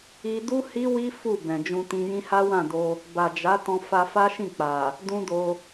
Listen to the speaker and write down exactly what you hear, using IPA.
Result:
i˧ d u˦ h i˦ w i˦ f u˦˨ b ɛ̃˨ d͡ʒ ũ˧ t ĩ˧ j ĩ˦ h a˦ w ã˦˨ d o˧ | b a˨ d͡ʒ a˨˦ t ɔ̃˧ f a˧ f a˦ ʃ ĩ˦˨ k͡p a˨ | d ũ˦ d o˧

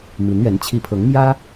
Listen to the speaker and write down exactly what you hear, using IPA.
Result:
m i˧˥ n ɥ ɛ˧˥ n t͡ɕʰ i˧˥ pʰ ɤ˧˥ ŋ m j ä˥

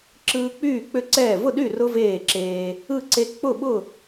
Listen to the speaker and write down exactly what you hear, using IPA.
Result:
ǁ ɯː˦ k͡p yː˥˨ k͡p ʏ˥˨ ǀ ɛː˥˨ v ʊ˥˨ ɗ y˥˨ r ʊ˦ v eː˥˨ ǁ eː˦ | ɯ˥˨ ǀ e˦ k͡p ʊ˥˨ ɓ ʊ˥˨

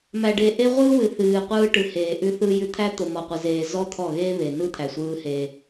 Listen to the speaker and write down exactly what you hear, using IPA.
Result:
m æ˨ ɖ e˨ ʔ e˦ ʁʷ ɯː˦ w ɨ˨ θ ɨː˨ qʷ ɯː˦ ʈ ɯ˨ h eː˨ ʔ ʉ˦ θ ɯ˦ j ʉ˦ t̪ʰ æ˦ t̪ o˨ m ɔ˨ qʷ ɯ˨ z eː˨ z ɔ˦ t̪ʰ ɔ˦˨ ɣ eː˦ β e˨ n ɯ˦ t̪ʰ æ˨ sʷ ɯː˦ h e˦

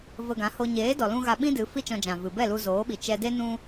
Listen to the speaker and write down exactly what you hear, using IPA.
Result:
v ə˧ ɡ ã˨˦ h o˧ ɲ eː˨˦ d ɔ˨ l ũ˧ ɣ a˧ ɓ ĩ˦ d ɨ˨˦ f i˦ t͡ʃ ɔ̃˧ d͡ʒ ã˨ v ɨ˨ b ɛ˦˨ l u˧ z oː˨˦ ɓ i˨ t͡ʃ ɛ˧ d e˦ n ũ˦

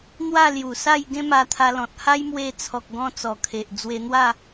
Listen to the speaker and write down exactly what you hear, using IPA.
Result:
n̪ w a˥˧ l j u˨˩ s a˥˧ j ɡ ẽ˦ m a˧ t̪ʰ a˧ l ɔ̃˨ t̚ h a˦ j m w e˧ t͡sʰ ɔ˨ k̚ ɡ ɔ̃˧ t͡s ɔ˨˩ kʰ e˨ ʔ d͡z w e˧ n̪ w a˥˧

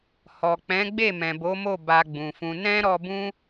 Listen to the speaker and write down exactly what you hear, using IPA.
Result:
h ɔ˨ k͡p ɛ̃˨˦ ɡ͡b e˦˨ m ɛ̃˨ b o˨˦ m o˦˨ b a˧ ɡ͡b ũ˨ f ũ˧ n ɛ̃˦ ɾ ɔ˧ b ũ˦

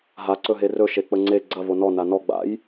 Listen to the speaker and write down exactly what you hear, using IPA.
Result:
ɦ a ǀ ɵ ɦ e r ɵ ʃ e k͡p ə ŋ͡ǀ e ɡ͡ǀ ɐ v o n ɔ n a n ɔ ɡ͡b a̰ j

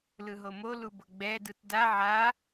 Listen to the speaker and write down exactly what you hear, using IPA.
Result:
l ɯ ɦ o m o l u b ɤ ɡ͡b ɛ d ɯ t d a ʕ a

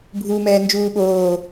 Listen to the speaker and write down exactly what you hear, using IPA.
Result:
bʱ uː m ɛː n d͡ʒ uː ɓ oː

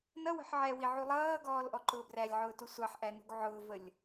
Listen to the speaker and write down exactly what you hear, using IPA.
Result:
n ʌ w ə̤ ħ ʕ ɛ w i ʕ u lˠ ʌː ɡ ɔː l ʔ ɔ ǃ ʊː b r æ lʲ ʕ ʊː t u sʷ ɑ ħ ʔ æ n ṳ ɡ ʕ ʊː v ə lʲ

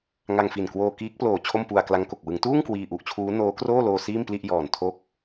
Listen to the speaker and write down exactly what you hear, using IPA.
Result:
ŋ a˧ ŋ f i˨˩ n k w oː˧ k iː˦˥ k̚ p l oː˨˩ t͡ɕʰ o˥˩ m p u˧ a̯ k l a˦˥ ŋ k o˨˩ k̚ w ɯ˩˦ ŋ t uː˥˩ ŋ k w iː˧ ʔ u˨˩ ʔ t͡ɕʰ uː˦˥ n oː˦˥ k r oː˥˩ l oː˧ s iː˥˩ m p l i˥˩ ʔ j ɔː˨˩ n tʰ o˦˥ k̚

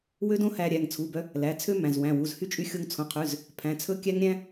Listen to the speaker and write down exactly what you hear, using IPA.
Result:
w ø˥ d õ˥ h æ˧ ɾʲ æ˩˧˩ ŋ t͡sʰ u˩˧˩ b œ˧ | l æ˩˧˩ t͡sʰ ø˥ m æ̃˩˧˩ z w æ̃˩˧˩ w u˩˧˩ z h y˥ t͡ʃʼ y˧ xʲ o˧ ŋ t͡sʰ õ˩˧˩ qʰ ʉ˩˧˩ z | pʰ æ̃˩˧˩ t͡sʰ ɵ˥ kʲ æ˥ ŋ ɾʲ æ̃˥

